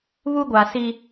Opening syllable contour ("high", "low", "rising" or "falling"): high